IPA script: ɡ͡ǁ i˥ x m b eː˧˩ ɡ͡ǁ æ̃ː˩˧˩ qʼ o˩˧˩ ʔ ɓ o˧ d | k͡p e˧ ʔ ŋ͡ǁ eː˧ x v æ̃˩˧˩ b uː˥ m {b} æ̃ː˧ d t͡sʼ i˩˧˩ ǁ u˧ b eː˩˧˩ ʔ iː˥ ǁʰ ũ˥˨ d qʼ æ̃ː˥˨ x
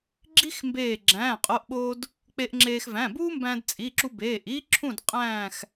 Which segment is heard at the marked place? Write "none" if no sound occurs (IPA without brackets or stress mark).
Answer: b